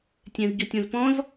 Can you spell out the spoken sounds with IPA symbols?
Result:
tʲ ɛ̃ z ɟ o tʲ õ z p ɔ̃ z

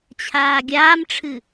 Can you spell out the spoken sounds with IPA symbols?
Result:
t͡ɕʰ aː ɡʲ aː m ʈ͡ʂʰ ɨ

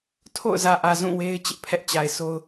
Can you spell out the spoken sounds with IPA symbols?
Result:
tʰ o̰˦˨ ʊ̯ z ä˨ ʔ ä˨ z ũ˦˨ w e˦ ɪ̯ t͡ɕ ɪ˦ ʔ pʰ ɛ˦ ʔ t͡ɕ a˨ ɪ̯ s o˦ ʊ̯

